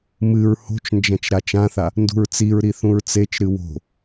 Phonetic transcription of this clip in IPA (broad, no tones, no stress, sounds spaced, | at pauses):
m ɨ ɹ h o̤ t͡ʃ n d͡ʒ ɐ̃ t͡ʃ ɾ a t͡ʃ ã θ a | n d ṳ ɹ t͡s i ɹ ɾ i θ ũ ɹ t͡s e t͡ʃ ɾ ɨ w o̤